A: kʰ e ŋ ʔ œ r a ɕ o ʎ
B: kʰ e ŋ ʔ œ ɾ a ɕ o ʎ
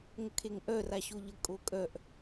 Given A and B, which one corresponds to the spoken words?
A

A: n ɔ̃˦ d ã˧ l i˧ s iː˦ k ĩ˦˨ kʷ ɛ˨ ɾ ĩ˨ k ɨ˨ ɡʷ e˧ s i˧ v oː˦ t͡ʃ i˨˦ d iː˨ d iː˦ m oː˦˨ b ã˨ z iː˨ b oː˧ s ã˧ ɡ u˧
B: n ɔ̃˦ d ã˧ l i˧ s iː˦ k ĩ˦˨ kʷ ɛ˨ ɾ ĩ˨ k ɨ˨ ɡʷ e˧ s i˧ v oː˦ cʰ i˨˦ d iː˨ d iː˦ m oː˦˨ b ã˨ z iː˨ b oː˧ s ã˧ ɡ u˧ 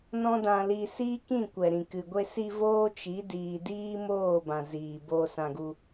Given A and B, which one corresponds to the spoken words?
A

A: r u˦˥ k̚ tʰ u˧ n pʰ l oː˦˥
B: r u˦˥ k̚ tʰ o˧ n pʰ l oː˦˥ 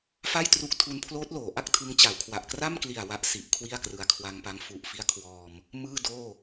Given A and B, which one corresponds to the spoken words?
A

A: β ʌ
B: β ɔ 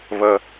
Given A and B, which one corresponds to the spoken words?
A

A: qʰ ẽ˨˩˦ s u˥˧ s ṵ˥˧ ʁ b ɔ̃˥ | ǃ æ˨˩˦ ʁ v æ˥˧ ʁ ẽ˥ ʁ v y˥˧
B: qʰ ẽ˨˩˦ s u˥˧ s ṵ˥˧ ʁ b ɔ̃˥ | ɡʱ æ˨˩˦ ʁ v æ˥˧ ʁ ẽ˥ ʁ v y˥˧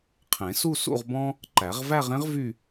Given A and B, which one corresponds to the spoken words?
A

